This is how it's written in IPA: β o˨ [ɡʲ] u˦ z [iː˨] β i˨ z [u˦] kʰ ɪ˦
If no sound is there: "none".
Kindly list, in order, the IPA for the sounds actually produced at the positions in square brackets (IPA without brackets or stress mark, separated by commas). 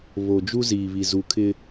d͡ʒ, iː˨, u˨